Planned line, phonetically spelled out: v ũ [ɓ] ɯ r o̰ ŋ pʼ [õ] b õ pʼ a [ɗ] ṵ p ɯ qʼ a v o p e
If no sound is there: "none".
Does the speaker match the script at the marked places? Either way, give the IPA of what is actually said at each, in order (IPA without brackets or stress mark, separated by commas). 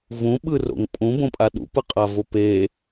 ɓ, ũ, ɗ